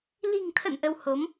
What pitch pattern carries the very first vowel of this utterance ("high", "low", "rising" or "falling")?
low